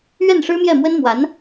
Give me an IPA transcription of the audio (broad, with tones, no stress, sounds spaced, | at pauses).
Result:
ɥ ɛ˥˩ n ʂ ɻ̩˥ m j ɛ˥˩ m w ə˥ n m w a˧˥ n